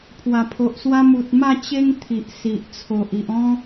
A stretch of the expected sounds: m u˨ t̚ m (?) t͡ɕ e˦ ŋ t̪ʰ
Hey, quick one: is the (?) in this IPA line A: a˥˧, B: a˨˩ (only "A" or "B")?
A